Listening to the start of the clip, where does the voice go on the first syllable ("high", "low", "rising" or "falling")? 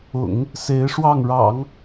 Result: low